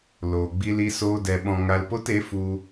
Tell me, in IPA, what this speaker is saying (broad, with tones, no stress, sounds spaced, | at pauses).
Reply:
l oː˨ ɡ͡b i˧ l i˧ s oː˧ d ɛ˨ ɓ ɔ̃˨ ŋ a˧ l p o˦ t e˨˦ f u˧